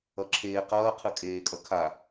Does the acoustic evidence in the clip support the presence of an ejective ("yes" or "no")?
yes